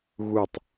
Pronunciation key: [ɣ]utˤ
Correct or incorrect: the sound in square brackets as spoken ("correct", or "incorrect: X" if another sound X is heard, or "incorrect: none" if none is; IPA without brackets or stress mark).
correct